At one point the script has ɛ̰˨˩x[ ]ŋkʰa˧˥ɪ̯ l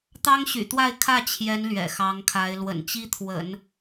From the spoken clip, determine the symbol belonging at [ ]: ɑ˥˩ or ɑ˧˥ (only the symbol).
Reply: ɑ˧˥